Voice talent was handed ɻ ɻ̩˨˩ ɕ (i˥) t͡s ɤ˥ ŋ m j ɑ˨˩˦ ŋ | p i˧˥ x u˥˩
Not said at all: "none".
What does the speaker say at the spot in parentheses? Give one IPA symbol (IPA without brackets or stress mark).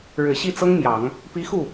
i˥˩